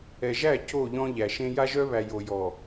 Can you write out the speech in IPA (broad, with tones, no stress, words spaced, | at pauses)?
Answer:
ɛ˨ʒæ˦˨ co˦˨ʎɔ̃˦ʎæ˨ʃẽ˦ ja˦ʒœ˦βæ˨ jo˨jɔ˨